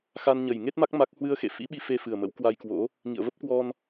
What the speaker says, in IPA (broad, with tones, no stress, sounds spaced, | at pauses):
x a˧ n ɲ ə˨˩ j ŋ e˦˥ t̚ m a˦˥ k̚ m a˦˥ k̚ h w ɨ˧ ə̯ x ḛ˧˨ f ḭ˧˥ ɓ i˧ f e˧ f ɨ˨˩ ə̯ m ə̰˧˥ w k w a˧ j k w o̰˧˥ | ŋ ḭ˧˨ ə̯ v ə˦˥ p̚ k w ɔ˧ n